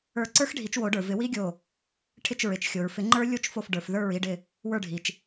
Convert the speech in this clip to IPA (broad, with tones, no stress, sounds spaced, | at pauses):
ə˞˧˩ ǀ ə˞˦˥ x ɖʱ i˨˩˦ t͡ʃ w o˨˩˦ ɖ ə˞˩ v ɪ˨˩˦ w i˦˥ ɡʲ o˧˩ | ʈʰ ɪ˧˩ t͡ʃ ɹ ɪ˩ t͡ʃ xʲ o˩ ɹ f ɪ˨˩˦ ŋ͡ǃ ə˞˦˥ lʲ o˦˥ t͡ʃ f o˧˩ f ɖ ə˞˩ f ð ə˞˧˩ ɹ i˧˩ ɖ ɪ˧˩ | w ə˞˧˩ ɖʱ i˩ t͡ʃ